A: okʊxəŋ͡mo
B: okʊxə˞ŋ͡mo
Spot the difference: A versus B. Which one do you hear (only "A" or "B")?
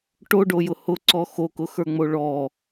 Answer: B